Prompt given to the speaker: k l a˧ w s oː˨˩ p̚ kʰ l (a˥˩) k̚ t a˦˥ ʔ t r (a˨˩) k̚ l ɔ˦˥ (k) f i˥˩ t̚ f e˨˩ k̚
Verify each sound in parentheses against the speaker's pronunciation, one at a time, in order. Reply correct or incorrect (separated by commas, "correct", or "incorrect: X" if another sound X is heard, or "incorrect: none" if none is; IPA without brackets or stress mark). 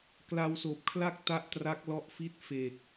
correct, incorrect: a˦˥, incorrect: ʔ